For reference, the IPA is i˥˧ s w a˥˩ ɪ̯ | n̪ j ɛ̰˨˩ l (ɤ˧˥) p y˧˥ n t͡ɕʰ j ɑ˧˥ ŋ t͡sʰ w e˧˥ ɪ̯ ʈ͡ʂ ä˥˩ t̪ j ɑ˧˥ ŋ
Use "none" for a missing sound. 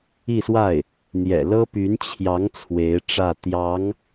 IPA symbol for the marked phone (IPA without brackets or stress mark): ɤ˥